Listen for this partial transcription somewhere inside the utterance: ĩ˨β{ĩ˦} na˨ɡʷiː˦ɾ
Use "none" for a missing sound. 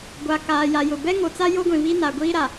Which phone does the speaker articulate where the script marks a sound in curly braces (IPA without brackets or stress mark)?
i˦